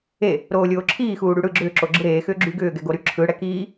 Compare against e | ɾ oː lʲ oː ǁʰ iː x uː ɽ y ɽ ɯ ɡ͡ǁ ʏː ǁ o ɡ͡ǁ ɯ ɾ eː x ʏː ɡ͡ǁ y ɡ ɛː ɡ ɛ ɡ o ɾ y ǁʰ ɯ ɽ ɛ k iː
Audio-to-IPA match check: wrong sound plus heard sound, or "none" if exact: ɛː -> ʏː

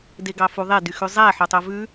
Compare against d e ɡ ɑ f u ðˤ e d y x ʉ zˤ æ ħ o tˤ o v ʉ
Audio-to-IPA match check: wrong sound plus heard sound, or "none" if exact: none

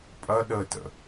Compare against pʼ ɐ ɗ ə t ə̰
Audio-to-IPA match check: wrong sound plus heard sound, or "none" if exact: none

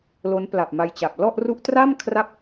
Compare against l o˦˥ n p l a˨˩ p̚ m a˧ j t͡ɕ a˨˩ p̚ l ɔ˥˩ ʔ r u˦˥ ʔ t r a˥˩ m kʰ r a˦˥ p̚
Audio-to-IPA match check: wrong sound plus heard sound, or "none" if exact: none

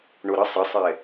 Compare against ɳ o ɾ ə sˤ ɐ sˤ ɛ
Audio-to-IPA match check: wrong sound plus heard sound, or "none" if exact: ɐ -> ə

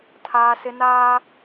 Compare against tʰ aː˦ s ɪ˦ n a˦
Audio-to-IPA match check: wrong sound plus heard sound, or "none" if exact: a˦ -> aː˦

